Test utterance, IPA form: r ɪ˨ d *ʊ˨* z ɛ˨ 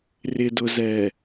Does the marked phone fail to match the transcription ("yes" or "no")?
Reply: no